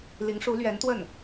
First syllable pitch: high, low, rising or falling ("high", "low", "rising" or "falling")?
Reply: rising